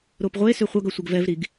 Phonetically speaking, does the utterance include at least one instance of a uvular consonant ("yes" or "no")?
yes